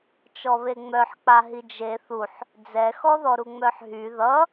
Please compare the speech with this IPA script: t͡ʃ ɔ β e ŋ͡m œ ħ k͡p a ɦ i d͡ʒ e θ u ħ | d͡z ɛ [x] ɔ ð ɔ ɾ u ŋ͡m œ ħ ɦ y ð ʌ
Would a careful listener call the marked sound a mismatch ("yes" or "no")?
no